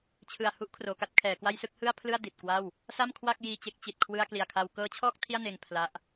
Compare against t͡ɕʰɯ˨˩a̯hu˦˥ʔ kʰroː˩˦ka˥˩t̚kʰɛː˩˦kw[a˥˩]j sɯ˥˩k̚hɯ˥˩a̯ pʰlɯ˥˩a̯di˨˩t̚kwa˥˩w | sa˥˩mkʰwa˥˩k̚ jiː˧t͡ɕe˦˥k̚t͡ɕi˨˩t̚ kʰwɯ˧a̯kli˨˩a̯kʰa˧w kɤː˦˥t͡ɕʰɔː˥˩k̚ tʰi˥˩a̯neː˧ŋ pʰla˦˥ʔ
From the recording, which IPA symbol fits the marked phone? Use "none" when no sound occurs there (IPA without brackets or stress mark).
a˥˩